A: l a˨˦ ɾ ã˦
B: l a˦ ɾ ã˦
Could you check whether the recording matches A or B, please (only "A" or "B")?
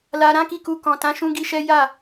B